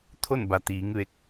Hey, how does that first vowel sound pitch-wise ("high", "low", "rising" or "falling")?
falling